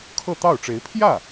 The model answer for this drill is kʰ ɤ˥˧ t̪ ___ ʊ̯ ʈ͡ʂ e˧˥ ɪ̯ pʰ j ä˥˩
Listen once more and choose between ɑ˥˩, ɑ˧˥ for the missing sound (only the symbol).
ɑ˥˩